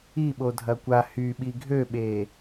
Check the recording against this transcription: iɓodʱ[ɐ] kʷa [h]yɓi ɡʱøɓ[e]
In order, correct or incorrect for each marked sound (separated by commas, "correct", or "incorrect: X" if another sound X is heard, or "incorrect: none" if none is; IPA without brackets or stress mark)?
correct, correct, correct